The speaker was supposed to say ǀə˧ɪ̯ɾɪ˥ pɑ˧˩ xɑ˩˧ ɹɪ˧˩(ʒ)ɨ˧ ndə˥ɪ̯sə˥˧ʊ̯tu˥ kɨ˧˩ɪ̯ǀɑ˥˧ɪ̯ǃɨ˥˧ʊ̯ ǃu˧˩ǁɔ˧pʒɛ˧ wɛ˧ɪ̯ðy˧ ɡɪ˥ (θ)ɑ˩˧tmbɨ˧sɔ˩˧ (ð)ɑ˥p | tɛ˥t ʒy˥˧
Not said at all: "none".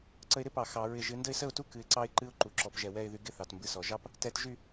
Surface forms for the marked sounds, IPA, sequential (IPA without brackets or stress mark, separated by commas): ʒ, θ, ʒ